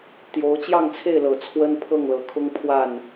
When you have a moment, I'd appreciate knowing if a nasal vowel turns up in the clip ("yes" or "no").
no